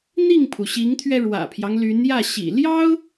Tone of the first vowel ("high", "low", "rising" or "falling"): falling